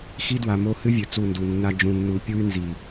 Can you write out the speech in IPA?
x i˦ d w a˨ m o˦ h ɨ˦ vʲ ɵ˨ t͡s u˦˨ n d u˨ nː a˦ d͡ʒ ũ˨ nː u˨˦ pʲ u˦ y̯ n z i˨

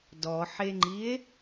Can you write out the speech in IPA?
d ɔ ħ e ŋ͡ǃ i e̯

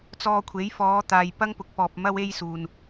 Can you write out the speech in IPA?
t͡s ɔː˧ kʷʰ e˨˥ j f ɔː˨˧ t̪ aː˨ j p ɐ˥ ŋ p ʊ˨˥ k̚ p ɔː˨ p̚ m ɐ˥ w e˥ j s uː˨ n

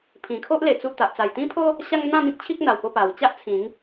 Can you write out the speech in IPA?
pʰ ĩ˨˩ kʰ o˦ ʔ l e˨˩ t͡s u˧ t̪ a˨ ʔ t͡s a˨˩ j t̪ ĩ˦ pʰ o˦ | ɕ a˦ ŋ n̪ ã˥˧ m ĩ˦ k̚ t͡ɕʰ i˦ k̚ n̪ a˨˩ w p o˧ p a˨˩ w t͡ɕ a˦ ʔ t͡sʰ ĩ˨˦ ŋ

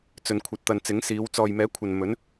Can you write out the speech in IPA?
t͡s ɵ˨ n kʷʰ ɐ˨ t̚ t̪ ɐ˨ n t͡s ɪ˨˥ ŋ s iː˨˧ w t͡s ɔː˨ j m ɛː˨˥ kʷʰ ɐ˨ n m ɵ˨˥ n

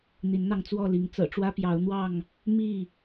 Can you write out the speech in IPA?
n̪ i˨˦ n n̪ ɑ˧ ŋ t͡s w ɔ˥˨ l i˨˦ ŋ t͡s ɤ̰˨˩ ʈ͡ʂ w ä˦ p j ɑ˨˦ ʊ̯ n̪ w ɑ˥˨ ŋ | m i˥˨

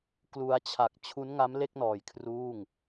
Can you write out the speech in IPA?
k l u˧ a̯ t͡ɕʰ a˨˩ k̚ t͡ɕʰ u˦˥ n ŋ a˦˥ m l e˥˩ k̚ n ɔː˨˩ j kʰ r uː˥˩ ŋ

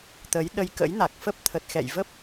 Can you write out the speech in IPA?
t̪ ə˨˦ j ɗ ə˧ j k ə̰˧˥ j n a˨˩ k̚ f ə˦˥ p̚ t̪ʰ ə˨˩ t̚ x ɛ̰˧˨ j v ə˦˥ p̚

